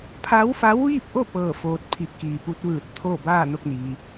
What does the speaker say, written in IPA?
pʰ a˧˥ w f a˧˥ w ʋ iː˥˨ p̚ ʔ o˥˨ p ɤː˥˨ f oː˧ t̚ pʰ i˧ p̚ k iː˩ p u˧˥ t̚ ʋ ɯː˧˩ t̚ t̪ʰ o˥˨ b aː˥˨ n o˥˨ k̚ n iː˩

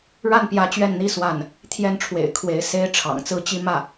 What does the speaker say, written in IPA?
ɻ a˥˩ n p j ä˧˥ t͡ɕ ɥ ɛ˥˩ n n̪ i˥ s w a˥˩ n | t̪ʰ j ɛ˥˩ n ʈ͡ʂʰ w ḛ˨˩ ɪ̯ kʰ w e˧˥ ɪ̯ s e˥ ɪ̯ ʈ͡ʂʰ ɑ̰˨˩ ŋ t͡s ɹ̩˥ t͡ɕ i˥ m ä˥˩

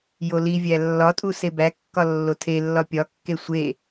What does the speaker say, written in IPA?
j o l i vʲ æ lː ɒ tʼ u s e b æ kː ɒ lː o tʰ e lː ɒ pʲ ɒ kː e sʷ e

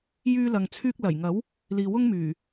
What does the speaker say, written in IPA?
j yː˧ l ɐ˨ ŋ t͡sʰ yː˧ k̚ l ɐ˨˩ j ŋ ɐ˨˥ w | l iː˨ w ʊ˥ ŋ m yː˨˩

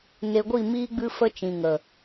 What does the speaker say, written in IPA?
n e˨ ɡʷ i˦˨ m iː˧ ɡ͡b ɨ˧ f ə˧ t͡ʃ ĩ˨ ŋ ə˨

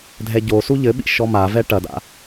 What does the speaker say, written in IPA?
dʱ ɛ ɟ o s u ʎ ɘ ɓ ḭ ʃ ɔ m a v ɛ ʈ ɐ d a̰

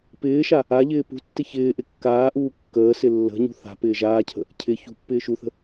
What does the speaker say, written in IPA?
p ɪː ʃ a | a ʎ ɪː p ṳ tː ɪ ç ɪː ʔ ɪ kː aː ʔ uː kː əː s ɪ lː ə̤ ɲ ṳ θ a̤ p ɪː ʒ aː cʰ ə̤ | cʰ ɪ ç ṳ pː ɪː ʃ u θ ə̤

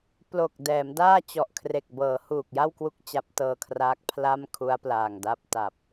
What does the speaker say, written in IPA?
p l o˨˩ k̚ d ɛː˩˦ m d aː˥˩ t͡ɕ ɔ˨˩ ʔ kʰ r e˨˩ k̚ b ɤː˩˦ h uː˨˩ k̚ j a˥˩ w k w u˦˥ k̚ t͡ɕ a˦˥ p̚ t ɤː˧ kʰ r aː˦˥ k̚ pʰ l a˥˩ m kʰ u˦˥ a̯ p l aː˨˩ ŋ d a˦˥ p̚ t a˨˩ p̚

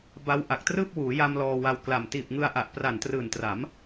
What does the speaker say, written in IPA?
b a˦˥ w ʔ a˨˩ k̚ t r ɯː˥˩ p̚ w uː˩˦ j a˧ m l ɔː˧ w a˧ w k l a˨˩ m t iː˨˩ p̚ ŋ ɯ˧ a̯ ʔ a˨˩ ʔ p r a˨˩ n t r ɯː˨˩ n t r a˩˦ m

